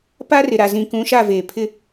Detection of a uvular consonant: absent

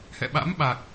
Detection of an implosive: present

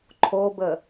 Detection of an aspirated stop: present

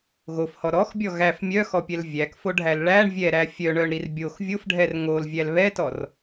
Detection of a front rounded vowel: present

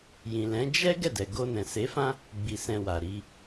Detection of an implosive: absent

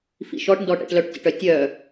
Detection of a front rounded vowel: present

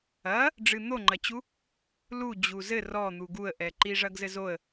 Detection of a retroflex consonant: present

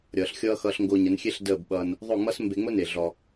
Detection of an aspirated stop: absent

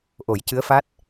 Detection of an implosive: absent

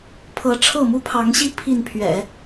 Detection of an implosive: absent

